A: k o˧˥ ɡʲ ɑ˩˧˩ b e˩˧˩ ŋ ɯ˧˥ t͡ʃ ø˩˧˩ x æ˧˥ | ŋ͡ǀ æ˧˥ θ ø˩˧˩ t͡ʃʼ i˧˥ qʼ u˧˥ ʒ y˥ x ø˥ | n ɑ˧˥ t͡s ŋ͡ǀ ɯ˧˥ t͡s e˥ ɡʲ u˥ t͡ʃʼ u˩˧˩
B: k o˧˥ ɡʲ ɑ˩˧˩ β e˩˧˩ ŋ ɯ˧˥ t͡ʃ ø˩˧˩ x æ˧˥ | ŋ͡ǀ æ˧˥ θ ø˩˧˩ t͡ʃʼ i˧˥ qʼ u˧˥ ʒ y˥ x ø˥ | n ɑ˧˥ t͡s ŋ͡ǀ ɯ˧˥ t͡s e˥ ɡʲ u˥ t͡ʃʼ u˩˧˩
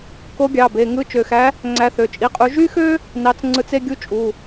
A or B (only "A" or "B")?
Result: A